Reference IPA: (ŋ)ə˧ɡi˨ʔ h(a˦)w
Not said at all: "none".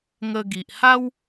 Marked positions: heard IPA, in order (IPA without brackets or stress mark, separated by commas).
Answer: ŋ, a˦